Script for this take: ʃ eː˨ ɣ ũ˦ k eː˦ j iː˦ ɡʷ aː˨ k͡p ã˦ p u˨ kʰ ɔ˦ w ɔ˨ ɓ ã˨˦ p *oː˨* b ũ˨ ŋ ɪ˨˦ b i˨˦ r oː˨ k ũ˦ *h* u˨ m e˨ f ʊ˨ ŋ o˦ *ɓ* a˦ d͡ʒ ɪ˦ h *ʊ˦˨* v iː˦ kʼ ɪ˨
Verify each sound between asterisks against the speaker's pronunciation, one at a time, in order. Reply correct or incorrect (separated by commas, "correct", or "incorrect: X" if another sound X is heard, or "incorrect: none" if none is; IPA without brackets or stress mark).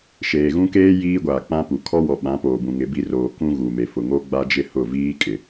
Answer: correct, incorrect: ɣ, incorrect: ɡ͡b, correct